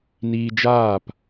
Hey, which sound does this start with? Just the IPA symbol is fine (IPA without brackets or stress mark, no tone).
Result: n